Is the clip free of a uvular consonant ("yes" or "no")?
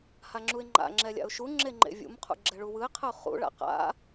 no